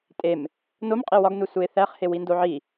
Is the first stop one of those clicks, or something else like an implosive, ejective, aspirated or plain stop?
ejective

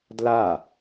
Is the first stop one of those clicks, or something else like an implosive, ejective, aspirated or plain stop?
plain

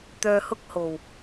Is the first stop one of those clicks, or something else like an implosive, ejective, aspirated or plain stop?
plain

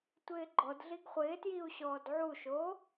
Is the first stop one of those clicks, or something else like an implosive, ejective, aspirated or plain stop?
plain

